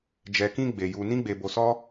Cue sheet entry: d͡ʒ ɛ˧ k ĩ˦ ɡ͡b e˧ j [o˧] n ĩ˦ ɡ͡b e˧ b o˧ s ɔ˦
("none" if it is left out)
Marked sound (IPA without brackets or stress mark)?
u˧